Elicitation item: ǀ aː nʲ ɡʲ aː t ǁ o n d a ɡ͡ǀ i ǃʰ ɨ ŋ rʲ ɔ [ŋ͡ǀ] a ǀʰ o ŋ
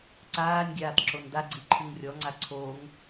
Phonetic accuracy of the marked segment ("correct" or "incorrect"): correct